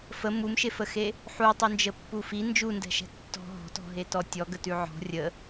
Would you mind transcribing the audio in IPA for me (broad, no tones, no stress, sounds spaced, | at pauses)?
f ə m u m ʃ e f ə x e | ħ u tˤ ʉ n d͡ʒ ə pː u f i n d͡ʒ u n d ɛ̤ ʃ ɛ̤ tː ɔ̤ ɦ ɔ̤ t ɔ̤ ɦ e t ɔ tʲ ɔ ɡ ə t ʉ ʕ ɔ̤ rʲ ə